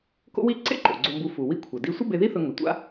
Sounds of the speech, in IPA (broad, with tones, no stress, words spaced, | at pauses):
ko̰˥wi˥ ǀḛ˥ǃo̰˩ ɡ͡ǀo˧mbu˧ fu˩ wi˧ kʷʰɜ˩di˧sʷə˥ be˧ði˥θɵ˧ ŋɵ˩tʷa̰˧